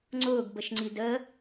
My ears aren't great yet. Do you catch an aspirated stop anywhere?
no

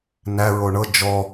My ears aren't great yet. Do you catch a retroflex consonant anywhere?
yes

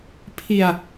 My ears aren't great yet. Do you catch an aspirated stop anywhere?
yes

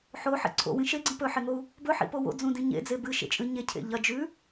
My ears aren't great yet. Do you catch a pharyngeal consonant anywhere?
yes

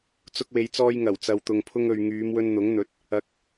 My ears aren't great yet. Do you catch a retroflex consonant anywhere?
no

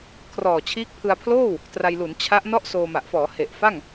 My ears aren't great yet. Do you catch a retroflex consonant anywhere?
no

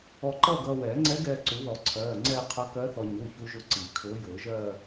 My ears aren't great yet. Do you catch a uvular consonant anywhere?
yes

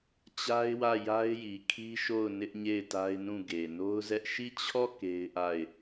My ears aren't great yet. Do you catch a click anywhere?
no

